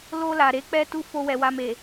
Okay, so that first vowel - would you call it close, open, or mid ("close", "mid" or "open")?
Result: mid